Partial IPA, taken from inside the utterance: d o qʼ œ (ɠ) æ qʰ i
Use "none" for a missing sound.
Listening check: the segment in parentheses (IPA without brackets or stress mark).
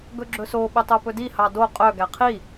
ɡ